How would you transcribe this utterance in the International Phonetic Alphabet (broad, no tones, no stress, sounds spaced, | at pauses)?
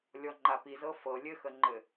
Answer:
lʲ ɔ ŋ͡ǃ a p i z ɤ f ɤ lʲ ɘ x ə ŋ͡ǃ ɘ